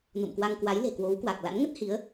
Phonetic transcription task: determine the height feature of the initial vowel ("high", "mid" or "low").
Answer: high